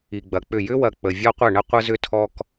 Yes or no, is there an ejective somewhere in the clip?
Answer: no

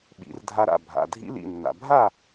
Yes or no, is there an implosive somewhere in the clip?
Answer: yes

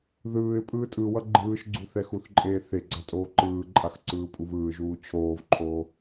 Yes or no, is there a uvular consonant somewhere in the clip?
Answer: no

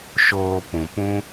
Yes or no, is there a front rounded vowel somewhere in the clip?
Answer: no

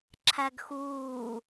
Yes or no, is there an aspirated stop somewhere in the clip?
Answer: yes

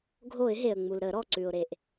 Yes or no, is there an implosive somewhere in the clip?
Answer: no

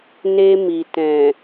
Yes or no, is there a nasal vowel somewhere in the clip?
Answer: yes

